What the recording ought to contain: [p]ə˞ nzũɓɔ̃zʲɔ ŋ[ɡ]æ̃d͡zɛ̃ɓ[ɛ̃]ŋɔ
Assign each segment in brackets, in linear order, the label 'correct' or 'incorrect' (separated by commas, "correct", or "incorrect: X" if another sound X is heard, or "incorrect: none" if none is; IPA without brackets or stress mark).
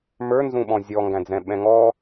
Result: incorrect: m, correct, correct